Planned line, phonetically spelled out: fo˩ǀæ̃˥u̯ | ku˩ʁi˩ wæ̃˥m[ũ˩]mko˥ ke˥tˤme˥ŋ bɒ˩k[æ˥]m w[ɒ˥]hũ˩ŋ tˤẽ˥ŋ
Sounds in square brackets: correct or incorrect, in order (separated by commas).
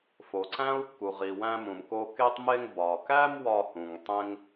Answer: correct, correct, correct